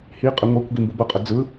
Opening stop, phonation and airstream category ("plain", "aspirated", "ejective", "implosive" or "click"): ejective